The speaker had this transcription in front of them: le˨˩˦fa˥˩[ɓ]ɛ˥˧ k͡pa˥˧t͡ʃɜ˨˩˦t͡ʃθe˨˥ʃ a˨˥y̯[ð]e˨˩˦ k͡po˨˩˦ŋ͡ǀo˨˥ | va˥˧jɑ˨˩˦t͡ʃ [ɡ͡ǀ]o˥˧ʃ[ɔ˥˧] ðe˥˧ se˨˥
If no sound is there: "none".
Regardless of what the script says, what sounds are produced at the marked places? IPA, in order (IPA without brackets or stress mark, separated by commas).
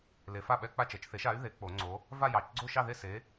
ɓ, ð, ɡ͡ǀ, ɑ˥˧